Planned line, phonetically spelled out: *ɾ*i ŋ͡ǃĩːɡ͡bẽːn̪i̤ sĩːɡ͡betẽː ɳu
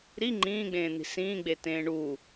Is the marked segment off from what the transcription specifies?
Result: no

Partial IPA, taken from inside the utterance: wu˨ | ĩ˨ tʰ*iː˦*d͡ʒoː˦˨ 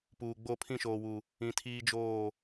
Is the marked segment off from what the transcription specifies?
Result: no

